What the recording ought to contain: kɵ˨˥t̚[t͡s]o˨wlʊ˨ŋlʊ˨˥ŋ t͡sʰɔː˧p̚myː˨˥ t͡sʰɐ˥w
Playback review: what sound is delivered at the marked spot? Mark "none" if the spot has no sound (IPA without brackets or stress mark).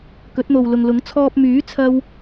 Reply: n̪